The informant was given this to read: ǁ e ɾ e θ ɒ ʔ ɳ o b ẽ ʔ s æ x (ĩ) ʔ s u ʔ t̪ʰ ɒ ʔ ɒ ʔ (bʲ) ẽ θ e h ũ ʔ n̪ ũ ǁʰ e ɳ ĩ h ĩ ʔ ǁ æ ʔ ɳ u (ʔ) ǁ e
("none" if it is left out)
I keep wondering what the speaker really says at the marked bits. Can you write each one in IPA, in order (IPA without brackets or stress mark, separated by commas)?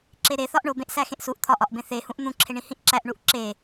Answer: ẽ, b, ʔ